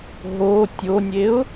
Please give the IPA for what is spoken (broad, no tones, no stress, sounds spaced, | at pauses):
ɦ o tʲ o nʲ e ʊ̯